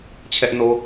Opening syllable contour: high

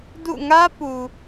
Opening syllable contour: falling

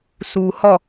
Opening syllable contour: low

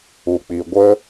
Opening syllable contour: low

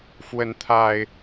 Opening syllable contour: rising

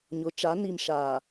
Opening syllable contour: rising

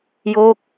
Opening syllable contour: falling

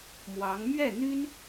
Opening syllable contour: rising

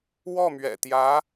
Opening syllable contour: falling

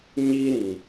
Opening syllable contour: high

